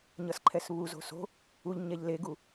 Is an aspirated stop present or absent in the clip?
present